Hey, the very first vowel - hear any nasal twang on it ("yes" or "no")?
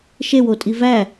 no